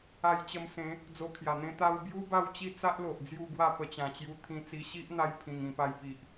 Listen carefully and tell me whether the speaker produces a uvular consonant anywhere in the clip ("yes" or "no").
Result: no